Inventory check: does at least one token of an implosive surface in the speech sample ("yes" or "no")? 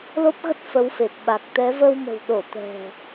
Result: yes